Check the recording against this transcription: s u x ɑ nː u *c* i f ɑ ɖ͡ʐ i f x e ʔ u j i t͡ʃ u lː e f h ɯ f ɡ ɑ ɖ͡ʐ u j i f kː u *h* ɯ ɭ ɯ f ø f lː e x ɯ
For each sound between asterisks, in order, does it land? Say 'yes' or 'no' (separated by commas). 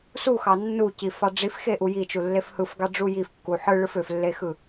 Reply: yes, no